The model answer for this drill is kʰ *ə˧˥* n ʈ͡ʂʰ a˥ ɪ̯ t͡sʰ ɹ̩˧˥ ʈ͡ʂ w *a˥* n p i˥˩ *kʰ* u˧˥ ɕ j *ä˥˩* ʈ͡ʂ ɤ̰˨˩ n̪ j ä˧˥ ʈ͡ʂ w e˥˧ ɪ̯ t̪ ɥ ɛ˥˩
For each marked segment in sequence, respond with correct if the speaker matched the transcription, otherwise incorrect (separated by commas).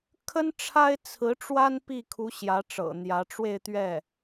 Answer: incorrect, correct, correct, incorrect